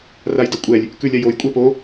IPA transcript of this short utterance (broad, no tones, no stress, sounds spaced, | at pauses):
r a j d ʌ kʷʼ ɛ lʲ | k ʉ lʲ a j o j kʷʼ ɛ p o